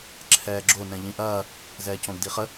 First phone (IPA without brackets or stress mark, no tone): ǁʰ